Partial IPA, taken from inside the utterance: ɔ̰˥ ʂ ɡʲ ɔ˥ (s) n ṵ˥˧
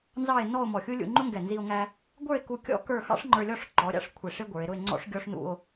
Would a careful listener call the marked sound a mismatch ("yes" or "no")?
yes